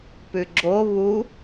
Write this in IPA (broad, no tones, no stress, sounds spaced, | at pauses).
p ʉ ɡ͡ǁ o β u